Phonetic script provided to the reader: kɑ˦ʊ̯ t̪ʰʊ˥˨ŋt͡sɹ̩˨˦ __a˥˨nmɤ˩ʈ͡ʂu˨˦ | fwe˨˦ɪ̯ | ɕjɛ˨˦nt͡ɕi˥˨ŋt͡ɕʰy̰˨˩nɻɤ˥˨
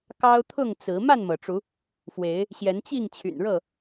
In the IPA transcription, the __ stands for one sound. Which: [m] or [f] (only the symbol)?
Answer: m